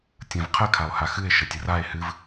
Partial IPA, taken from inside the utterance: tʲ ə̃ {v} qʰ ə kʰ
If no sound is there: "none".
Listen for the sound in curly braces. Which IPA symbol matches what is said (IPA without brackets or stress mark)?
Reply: v